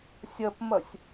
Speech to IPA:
sʲɐpmɐsʲ

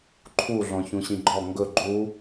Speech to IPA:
ǃʰuɮɔ̃ çũɕĩɡ͡ǃɔ ŋɡɵ ɡ͡ǃu

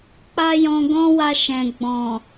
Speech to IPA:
k͡pa˦jɔ̃˧ɡɔ̃˦wa˧ ʃɛ̃˨ɡ͡bɔ̃˨

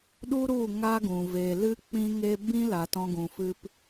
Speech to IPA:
ɗu˦ɾu˦˨ ŋa˦ɡũ˨ ve˨lɨ˦k͡pĩ˦ŋe˦ bĩ˦ la˧tɔ̃˦ɡũ˧fɨ˦p

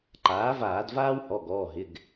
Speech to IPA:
ǃaː˩˥vaː˧˩˧d vaː˥whɔ˩˧˩ɡɔː˩˧˩ ɦɪ˩˧˩ɡ

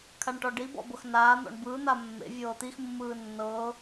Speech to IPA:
kʰaɳʈɔɖibɔ̰ bɤxnaːn̪ɔ̰ɳ bɯːn̪a mːḛvʲɤː t̪ixmːɯː nːɤː

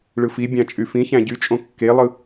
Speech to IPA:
ɭɯfibʲɑ̃ t͡ʃʼyfĩçæ̃ ɟyt͡ʃʼõ kːelˠɯ

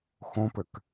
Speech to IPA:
xõpɘk

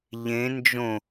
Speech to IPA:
ʎẽ nd͡ʒõ

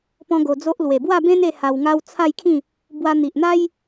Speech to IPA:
pɔ̃˦ɡo˧d͡zo˦ʔ lwe˨˩bwa˥˧bẽ˦ne˧ ha˧wŋa˦w t͡sʰa˥˧jkʰĩ˥˧ | bwa˧n̪i˨ʔn̪a˦j

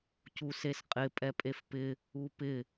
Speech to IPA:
cusesqʼɪ pʼɛpʼefpɪ | upɪ

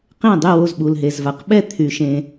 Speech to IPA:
qẽ˥˨dˤy˥˨wo˥˨zɓu˩l ɦe˩zva˩qɓɛ˥˨ t̪ʰy˩ʃẽ˩

